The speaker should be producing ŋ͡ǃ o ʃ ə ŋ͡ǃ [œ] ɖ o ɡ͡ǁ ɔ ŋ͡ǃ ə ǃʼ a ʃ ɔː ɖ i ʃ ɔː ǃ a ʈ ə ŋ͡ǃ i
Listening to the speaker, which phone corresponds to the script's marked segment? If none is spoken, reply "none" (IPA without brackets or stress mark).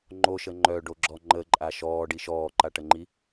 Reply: œ